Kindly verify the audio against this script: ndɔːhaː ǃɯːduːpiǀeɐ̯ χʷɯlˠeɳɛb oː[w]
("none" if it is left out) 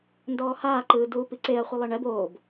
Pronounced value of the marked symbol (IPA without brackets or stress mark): b